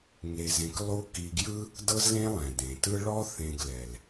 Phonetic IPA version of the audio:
ŋ e˧ z ẽ˧ k lˠ u˥ k i˧ ɡ j ɯ˥ | d ɤ˥ z l ẽ˥ lˠ ɛ̃˩ d ẽ˩ t ɯ˥ ɭ ɔ˥ θ ẽ˧ ɡ l ɛ˩ l

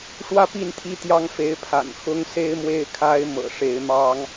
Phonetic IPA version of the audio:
ʂ w ä˦ p i˥˨ n t̪ʰ i˦ t̪ j ɑ˦ ŋ f e˨˦ ɪ̯ pʰ a̰˨˩ n x ʊ˦ ŋ s e˦ ɪ̯ m w e˦ ɪ̯ kʰ a˦ ɪ̯ m ɤ̰˨˩ ʂ e˨˦ ɪ̯ m ɑ˦ ŋ

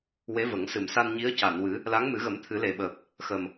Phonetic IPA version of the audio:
w e˧˥ v ə˨˩˦ ŋ s ɨ˨˩ m s a˧ n ɲ i˧˥ ə̯ c a˨˩˨ n w ɨ˨˩˦ | l a˧˥ ŋ m ɨ˨˩˦ ɣ ə˨˩˦ m t̪ʰ ɨ˨˩˦ l e˨˩ ɓ əː˨˩ p̚ | x ə˨˩ m

